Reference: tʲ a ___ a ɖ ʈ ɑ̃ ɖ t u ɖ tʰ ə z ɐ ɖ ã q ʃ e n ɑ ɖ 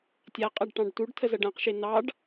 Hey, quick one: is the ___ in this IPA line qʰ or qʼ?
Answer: qʼ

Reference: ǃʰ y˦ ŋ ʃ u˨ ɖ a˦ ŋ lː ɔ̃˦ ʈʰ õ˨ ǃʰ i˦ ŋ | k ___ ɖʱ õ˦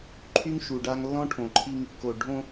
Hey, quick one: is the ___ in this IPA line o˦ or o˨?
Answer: o˨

